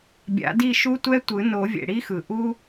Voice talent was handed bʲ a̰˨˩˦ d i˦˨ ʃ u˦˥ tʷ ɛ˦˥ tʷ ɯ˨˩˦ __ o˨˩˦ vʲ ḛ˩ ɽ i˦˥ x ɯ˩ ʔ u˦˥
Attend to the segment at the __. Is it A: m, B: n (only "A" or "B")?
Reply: B